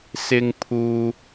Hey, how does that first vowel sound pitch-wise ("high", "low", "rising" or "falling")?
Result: high